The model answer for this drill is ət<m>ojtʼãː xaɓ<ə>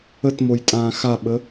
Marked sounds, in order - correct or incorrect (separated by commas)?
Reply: correct, correct